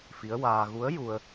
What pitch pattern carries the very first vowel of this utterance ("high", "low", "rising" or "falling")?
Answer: rising